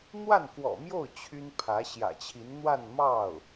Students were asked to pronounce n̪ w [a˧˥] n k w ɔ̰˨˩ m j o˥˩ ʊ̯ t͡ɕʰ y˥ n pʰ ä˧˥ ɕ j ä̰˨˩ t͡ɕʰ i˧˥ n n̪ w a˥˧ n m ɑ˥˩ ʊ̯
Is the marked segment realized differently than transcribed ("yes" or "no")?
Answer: yes